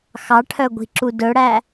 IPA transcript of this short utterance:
xɑʈʰœɡʷi̤ǁu dɵɽæ

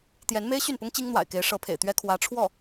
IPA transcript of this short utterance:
t̪jɛ˧˥nme˥ɪ̯ɕy˥˩npʊ˥ŋ t͡ɕi˥ŋn̪wa̰˨˩ɪ̯ke˧˥ɪ̯ ʂɤ˧˥pʰḛ˨˩ɪ̯t̪ɥɛ˥ kʰwä˧˥ʈ͡ʂʰwɔ˥˩

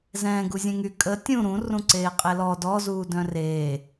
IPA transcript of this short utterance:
zɛ̃ːɡu zʲɛ̃ŋy kʼə tʲũ ɾũ rũǀeːqʼelɔ dɔzuː dœ̃reː

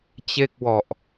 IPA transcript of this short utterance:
t͡ɕe˥˩k̚wɔ˨˩ʔ

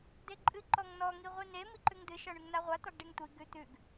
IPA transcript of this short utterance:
deǃʼɨ ǃɔŋnɔ ŋiʁʷine miǃʉŋdɨ ʃɒɳʉŋnaʁʷa t̪ɒɡɖeŋtʷi ɡʉ t̪ʉɡ

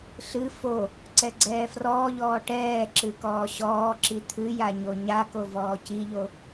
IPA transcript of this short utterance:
ɬɨ fo | ǀɛɡ͡ǀɛːfrɔːʎɔː ʈɛː ǁɨkɔːɕɔːǁi t̪ʰɨja ɲoɲa kovɔːciʎo

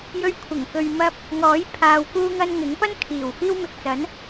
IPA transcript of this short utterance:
jɵ˧ɥkʷʰɪ˨˩ŋ kɵ˨ɥmɐ˧p̚ | ŋɔː˨˥j pʰaː˨wkuː˧ŋɐ˧n ŋɪ˨˥ŋ pɐ˥nkʰiː˨˩w fiː˥wmɪ˧k̚t͡sɐ˨˥n

